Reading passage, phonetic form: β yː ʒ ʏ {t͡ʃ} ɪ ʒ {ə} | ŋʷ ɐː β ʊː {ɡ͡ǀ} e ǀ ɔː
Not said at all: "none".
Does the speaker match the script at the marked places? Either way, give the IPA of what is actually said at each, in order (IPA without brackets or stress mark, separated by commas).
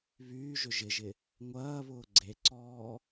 ʒ, ɪ, ɡ͡ǀ